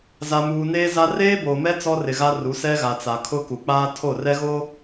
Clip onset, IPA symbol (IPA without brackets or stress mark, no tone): z